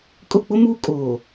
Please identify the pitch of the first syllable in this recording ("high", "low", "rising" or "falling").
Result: falling